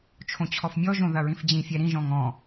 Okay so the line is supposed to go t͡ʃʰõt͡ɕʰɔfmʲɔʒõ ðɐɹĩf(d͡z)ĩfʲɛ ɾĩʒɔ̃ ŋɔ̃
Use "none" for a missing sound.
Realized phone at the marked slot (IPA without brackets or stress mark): d͡ʑ